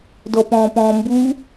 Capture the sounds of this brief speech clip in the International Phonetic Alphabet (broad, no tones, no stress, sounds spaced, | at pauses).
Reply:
d ɔ p ɔ̃ː p ɔ̃ː m b uː